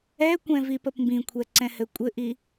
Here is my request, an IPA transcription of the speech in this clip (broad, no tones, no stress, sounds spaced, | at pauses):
ɛ kʷ ɛ̃ v i p ə p m b ĩ kʷʰ ɛ ǀ ɛ̃ h ɘ kʷʼ ɘ ʔ i